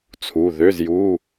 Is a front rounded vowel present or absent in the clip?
present